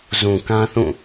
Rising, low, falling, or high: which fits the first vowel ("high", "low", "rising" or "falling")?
low